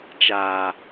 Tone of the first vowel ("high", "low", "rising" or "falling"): low